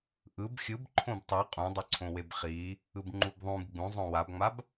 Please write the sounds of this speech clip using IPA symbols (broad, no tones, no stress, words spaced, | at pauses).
ʔɯb xʲɯb ǃʰõbtˤe qʼũdˤɯǀʰõweb χi | ɯbŋ͡ǃubðˤũb ɡ͡bũzˤõ wabŋ͡mab